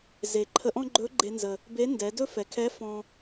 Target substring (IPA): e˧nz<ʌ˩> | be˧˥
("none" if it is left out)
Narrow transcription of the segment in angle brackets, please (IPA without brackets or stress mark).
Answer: ə˩